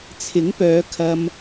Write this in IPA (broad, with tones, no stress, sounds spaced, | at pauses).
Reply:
t͡sʰ ɪ˨˥ ŋ p œː˨˧ kʰ ɐ˧ m